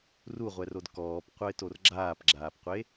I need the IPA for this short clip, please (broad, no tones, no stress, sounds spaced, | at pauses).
r u ʁʷ ɛ r o d k ɔː p qʷ ʌ ɪ̯ t o r ɡ͡ǁ aː p ɡ͡ǁ aː p qʷ e